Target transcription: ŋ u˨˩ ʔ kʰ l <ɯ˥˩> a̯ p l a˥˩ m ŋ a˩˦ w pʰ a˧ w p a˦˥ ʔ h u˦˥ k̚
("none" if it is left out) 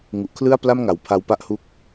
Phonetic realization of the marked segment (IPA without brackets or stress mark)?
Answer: ɯ˥˩